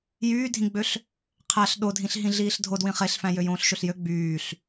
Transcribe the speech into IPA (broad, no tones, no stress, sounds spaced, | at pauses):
j yː dʱ ĩ ɡ͡b ø ɬ | qʰ æ ɬ ɗ o dʱ ĩ ɬ ɦ ĩ ɮ iː ɬ dʱ o d w ĩ χ e ɬ f æ̃ j ø j õː ɬ ʃ ø ɬ j ø ɡ͡b yː ɬ